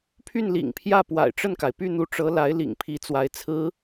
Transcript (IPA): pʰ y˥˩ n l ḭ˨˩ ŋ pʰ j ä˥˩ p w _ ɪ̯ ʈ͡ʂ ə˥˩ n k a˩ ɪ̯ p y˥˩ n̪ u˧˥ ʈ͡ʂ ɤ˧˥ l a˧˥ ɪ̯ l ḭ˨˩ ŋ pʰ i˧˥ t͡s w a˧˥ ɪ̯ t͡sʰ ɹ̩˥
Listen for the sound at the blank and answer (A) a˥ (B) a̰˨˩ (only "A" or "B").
B